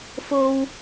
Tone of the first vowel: high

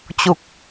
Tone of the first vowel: low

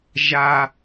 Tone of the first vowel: high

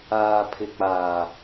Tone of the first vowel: low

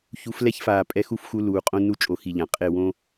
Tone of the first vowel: rising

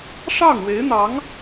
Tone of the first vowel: falling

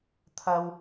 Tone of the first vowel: high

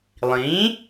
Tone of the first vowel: rising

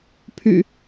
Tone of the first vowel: low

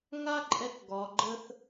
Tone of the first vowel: high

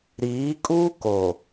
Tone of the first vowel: rising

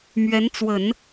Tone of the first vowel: rising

